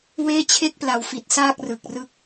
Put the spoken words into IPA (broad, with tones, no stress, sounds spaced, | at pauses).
w eː˦˥ t͡ɕʰ e˦˥ k̚ p l a˨˩ w f i˨˩ t̚ s aː˥˩ k̚ r ɯ˨˩ k̚ r ɯ˥˩ k̚